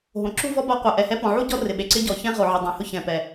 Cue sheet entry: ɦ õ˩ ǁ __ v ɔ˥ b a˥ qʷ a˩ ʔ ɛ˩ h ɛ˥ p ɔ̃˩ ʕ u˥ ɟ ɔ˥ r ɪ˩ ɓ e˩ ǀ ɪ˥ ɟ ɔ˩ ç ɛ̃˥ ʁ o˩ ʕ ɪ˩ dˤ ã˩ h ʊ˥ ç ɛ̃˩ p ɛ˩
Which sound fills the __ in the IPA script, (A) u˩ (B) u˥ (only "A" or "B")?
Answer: B